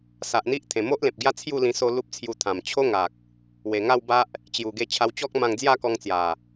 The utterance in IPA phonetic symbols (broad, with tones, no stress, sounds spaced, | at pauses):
s a˨ ʔ n̪ i˦ ʔ t̪ʰ ẽ˨˩ m o˦ ʔ l ẽ˨ p̚ ɡ j a˦ t͡sʰ j u˥˧ l ĩ˧ s o˦ l u˦ p̚ t͡sʰ j u˧ t̪ʰ ã˨˩ m t͡ɕʰ o˦ ŋ a˨ k̚ | w e˨˩ ŋ a˥˧ w b a˦ ʔ | t͡ɕ j u˨˩ ɡ e˧ t͡ɕʰ a˧ w t͡ɕ ɔ˦ k̚ m ã˧ ŋ d͡z j a˥˧ k ɔ˧ ŋ t͡s j a˨˩